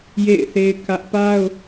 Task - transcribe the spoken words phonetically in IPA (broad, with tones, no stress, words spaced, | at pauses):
jḛ˦˨ɪ̯θe˦ɪ̯kä˦ʔ pa˦ʊ̯